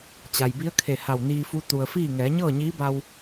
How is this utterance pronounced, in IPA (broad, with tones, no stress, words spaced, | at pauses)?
t͡ɕa˩jbi˧˥ə̯kʰe˧˩ ha˧˩wniː˧fu˧˥ t̪u˩ə̯fiː˥˨ ŋɛː˩˧ɲɤː˥˨ɲiː˧˥ba˧w